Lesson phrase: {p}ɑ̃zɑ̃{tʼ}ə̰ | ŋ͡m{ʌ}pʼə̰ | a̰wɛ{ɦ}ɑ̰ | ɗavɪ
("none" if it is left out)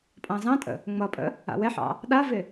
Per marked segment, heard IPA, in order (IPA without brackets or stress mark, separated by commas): pʼ, tʼ, ʌ, ħ